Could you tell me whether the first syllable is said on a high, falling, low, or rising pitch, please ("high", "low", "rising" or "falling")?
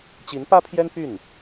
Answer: rising